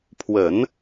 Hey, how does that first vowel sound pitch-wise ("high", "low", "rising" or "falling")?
low